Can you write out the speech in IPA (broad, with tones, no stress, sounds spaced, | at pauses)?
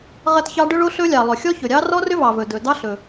ʁ ɐ˦˥ t ç ɑ˦˥ ɖ ɵ˦˥ ɭ o˦˥ ɬ ɵ˦˥ lʲ ɑ˩ lˠ ɵ˩ xʲ ɔ˦˥ ç ɵ˩ ɾʲ ɑ˦˥ r ɔ˦˥ r ʏ˦˥ v ɑ˩ v ɵ˩ d ɵ˩ d ɑ˦˥ ɬ ɵ˩